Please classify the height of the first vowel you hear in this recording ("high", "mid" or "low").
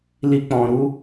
high